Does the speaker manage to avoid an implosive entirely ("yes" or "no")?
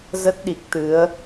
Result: no